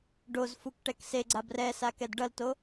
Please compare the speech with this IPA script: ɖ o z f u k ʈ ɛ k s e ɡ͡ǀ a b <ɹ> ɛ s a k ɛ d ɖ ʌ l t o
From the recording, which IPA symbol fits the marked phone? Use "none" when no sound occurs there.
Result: r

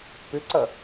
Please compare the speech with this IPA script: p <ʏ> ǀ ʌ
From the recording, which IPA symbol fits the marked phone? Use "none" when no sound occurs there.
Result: ʏ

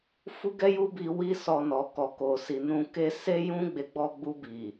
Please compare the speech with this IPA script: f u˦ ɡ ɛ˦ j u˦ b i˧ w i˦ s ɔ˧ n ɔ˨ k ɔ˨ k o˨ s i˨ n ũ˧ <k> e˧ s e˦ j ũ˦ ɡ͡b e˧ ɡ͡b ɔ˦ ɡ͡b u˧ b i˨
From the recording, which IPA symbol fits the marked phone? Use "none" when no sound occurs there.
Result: k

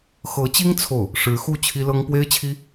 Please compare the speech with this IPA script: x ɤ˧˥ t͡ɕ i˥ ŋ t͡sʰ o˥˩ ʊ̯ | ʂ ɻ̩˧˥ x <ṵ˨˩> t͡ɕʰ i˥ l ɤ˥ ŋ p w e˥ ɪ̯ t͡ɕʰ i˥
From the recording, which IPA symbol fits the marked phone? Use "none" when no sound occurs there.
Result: u˥˩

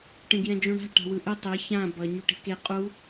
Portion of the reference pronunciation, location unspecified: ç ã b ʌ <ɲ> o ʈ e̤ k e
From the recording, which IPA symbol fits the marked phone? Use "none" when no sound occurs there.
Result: ɲ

